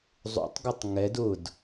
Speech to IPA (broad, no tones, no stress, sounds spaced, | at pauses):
zˤ ṵ tˤ ɡ ʏ tˤ ŋ ɛ d ʊ d